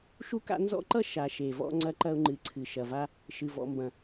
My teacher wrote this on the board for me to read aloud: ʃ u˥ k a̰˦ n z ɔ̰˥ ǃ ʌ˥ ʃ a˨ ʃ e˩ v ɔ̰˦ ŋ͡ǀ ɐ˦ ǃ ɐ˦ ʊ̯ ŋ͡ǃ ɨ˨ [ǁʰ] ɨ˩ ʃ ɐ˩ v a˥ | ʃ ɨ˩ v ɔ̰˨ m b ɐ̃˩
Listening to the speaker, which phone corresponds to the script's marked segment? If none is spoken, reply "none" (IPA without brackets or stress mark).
ǀʰ